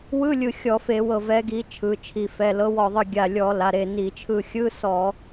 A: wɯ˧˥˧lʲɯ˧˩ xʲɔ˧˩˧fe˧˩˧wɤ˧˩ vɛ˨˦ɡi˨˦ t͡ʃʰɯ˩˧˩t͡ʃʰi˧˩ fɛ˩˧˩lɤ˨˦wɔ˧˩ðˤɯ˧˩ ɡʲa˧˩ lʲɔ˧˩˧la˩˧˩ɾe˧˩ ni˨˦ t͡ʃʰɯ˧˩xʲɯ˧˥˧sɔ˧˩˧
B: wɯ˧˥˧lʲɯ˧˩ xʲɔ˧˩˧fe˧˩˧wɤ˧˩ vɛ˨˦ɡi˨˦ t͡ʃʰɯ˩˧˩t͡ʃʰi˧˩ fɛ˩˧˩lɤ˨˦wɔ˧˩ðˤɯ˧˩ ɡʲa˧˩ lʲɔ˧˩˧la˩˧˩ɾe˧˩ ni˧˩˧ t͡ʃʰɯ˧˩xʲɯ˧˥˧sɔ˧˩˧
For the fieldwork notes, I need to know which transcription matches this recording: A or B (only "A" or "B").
B